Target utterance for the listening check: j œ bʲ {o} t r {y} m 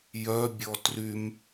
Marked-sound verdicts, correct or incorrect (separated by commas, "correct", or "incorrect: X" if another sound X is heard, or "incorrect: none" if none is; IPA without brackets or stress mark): incorrect: ɔ, correct